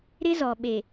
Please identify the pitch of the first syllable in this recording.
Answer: high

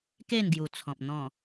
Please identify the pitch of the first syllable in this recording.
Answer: falling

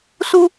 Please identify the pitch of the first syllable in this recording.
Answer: low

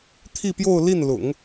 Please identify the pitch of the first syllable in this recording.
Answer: falling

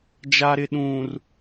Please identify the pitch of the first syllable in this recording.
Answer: low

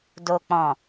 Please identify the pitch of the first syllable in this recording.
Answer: low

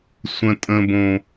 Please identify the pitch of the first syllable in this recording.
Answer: high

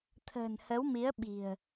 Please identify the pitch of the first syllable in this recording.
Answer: low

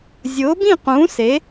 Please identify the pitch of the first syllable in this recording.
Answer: rising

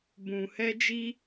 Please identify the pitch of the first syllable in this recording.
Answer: low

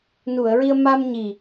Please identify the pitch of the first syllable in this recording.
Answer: low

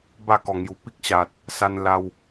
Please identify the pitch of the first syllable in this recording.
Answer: falling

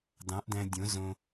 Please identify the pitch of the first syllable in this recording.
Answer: rising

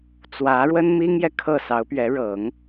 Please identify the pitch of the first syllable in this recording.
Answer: rising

